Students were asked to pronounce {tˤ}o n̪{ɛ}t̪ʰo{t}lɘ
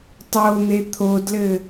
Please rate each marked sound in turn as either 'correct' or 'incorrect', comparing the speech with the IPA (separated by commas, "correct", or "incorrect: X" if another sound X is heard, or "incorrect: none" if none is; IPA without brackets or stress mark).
correct, incorrect: e, incorrect: d